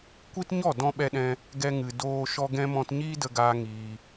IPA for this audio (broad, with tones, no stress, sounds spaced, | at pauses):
kʷ i˦ t ɲ ɔ˦˨ d ɔ̃˧ ɓ ɛ˧ ɗ ɛ̃˧ | ɡ ɛ˧ ŋ ɨ˨ d oː˧ ʃ ɔ˧ ɡ ɛ̃˧ m ɔ̃˧ t ɲ iː˦ d ə˧ ɡ aː˧ ŋ iː˧